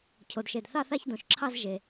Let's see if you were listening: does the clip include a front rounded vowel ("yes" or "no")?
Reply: no